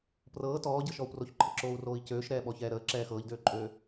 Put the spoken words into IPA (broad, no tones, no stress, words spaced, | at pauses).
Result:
prɤː tɔːɟɤʃɔu̯ proçǃʰəǁoːu̯roːi̯ cøːʃɾɛːɓɔçɛː ɾəːǁɛː xɤːʎdøːǃʼøː